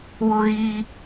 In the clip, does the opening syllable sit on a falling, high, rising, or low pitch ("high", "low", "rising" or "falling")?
high